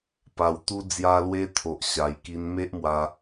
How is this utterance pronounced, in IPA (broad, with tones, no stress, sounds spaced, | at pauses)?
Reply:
p a˧ w t̪ u˦ d͡z j a˧ l w e˧ t̪ʰ o˨ ʔ ɕ a˧ j k i˧ n m e˦ ʔ m w a˧